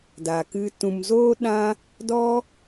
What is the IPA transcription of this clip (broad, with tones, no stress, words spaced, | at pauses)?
da˨ kɨ˧ tũ˨mzoː˦ɗã˦ | dɔ˦